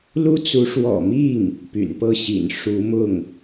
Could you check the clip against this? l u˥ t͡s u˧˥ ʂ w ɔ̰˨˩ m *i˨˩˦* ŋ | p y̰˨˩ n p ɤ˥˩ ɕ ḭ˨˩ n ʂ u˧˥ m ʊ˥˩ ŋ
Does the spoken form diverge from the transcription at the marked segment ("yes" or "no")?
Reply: yes